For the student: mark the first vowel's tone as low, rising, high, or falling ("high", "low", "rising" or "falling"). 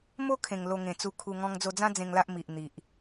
high